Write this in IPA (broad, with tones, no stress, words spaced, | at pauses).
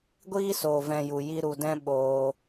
ɡʷiː˦soː˨ vɛ̃˧ju˨ji˦ ɾu˨dɛ̃˦ ɓoː˧